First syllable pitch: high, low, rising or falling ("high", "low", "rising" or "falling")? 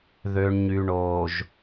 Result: low